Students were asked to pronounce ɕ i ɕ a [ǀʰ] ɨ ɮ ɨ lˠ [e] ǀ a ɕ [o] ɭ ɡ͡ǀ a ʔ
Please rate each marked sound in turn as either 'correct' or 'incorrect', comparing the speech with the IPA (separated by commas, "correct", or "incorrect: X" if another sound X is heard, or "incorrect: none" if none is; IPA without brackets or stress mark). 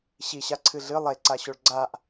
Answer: correct, correct, correct